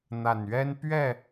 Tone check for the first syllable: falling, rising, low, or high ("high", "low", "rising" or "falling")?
low